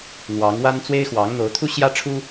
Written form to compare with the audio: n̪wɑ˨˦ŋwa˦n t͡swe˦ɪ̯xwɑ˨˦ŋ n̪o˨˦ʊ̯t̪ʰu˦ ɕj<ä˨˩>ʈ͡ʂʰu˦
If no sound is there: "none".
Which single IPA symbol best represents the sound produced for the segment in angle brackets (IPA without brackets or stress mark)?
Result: ä˦